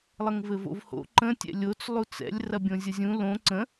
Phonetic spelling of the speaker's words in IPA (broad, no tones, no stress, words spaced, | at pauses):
lˠəŋvɘvo̰vho̰ ǃə̃ tʲɛ̰lʲot͡s lˠut͡sɛ̰lʲ rɐbʲõzʲɐzʲũ lõ ǀə̃